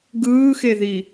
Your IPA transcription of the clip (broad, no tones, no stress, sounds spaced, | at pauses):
ɡ ɯː x e ð i